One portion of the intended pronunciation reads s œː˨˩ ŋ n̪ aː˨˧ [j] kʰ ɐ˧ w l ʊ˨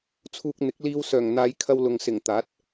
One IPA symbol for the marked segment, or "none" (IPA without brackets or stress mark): j